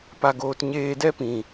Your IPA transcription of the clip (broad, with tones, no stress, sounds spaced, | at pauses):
p a˧ ɡ oː˧ t ɲ eː˧ d ɛ˦ p ĩ˨